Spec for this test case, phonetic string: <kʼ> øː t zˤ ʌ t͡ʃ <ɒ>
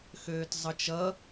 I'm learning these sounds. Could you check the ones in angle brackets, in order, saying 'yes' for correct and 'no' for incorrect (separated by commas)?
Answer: no, no